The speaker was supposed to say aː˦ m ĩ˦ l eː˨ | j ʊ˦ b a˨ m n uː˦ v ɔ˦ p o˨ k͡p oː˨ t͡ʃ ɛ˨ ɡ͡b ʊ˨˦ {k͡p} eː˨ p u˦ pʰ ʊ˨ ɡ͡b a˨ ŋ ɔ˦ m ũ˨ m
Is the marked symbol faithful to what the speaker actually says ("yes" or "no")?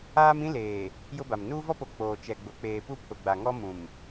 yes